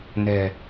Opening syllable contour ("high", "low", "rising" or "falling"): low